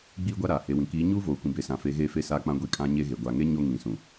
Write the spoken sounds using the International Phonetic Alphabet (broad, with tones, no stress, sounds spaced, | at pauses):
ɡ͡b iː˦ ɡʷ a˦ ɾ aː˨ h e˨ w ĩ˨ k iː˨˦ ɲ uː˦ v oː˨ kʷ ĩ˨ b e˨ s ã˨ f e˨˦ ɣ eː˦ f e˦˨ s aː˦ k͡p ã˦ ɡʷ i˦ kʼ ã˦ ɲ e˦ ɣ e˨ ɡʷ a˨ ŋ e˦ ɲ o˦ ŋ ĩ˨ s ũ˨